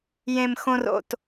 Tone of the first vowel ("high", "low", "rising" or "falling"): low